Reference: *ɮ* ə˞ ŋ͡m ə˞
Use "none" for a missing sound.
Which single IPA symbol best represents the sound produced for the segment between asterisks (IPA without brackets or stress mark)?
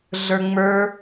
ɮ